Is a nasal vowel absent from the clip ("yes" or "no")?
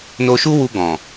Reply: no